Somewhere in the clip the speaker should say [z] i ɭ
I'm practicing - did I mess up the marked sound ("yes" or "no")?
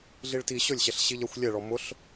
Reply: yes